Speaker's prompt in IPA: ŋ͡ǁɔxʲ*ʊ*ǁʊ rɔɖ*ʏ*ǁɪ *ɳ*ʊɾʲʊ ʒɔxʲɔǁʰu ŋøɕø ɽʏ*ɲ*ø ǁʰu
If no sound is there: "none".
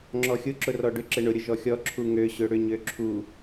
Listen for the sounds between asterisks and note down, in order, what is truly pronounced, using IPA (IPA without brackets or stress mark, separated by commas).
ʊ, ʏ, ɳ, ɲ